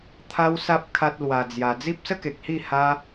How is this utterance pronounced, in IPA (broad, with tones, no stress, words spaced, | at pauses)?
t̪ʰa˦wsa˦p̚ kʰa˦t̚lwa˧d͡zja˧ d͡zi˦p̚sə˦ke˨k̚hi˥˧ ha˦